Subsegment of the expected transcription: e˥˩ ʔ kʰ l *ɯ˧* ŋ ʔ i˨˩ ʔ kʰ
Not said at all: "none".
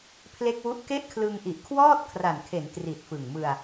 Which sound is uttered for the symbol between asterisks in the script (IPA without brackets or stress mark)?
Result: ɯ˧